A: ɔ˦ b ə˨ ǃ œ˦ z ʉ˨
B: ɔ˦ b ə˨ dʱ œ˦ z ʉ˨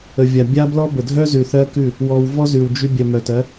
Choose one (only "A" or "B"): B